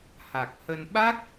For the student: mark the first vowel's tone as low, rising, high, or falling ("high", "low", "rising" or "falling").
low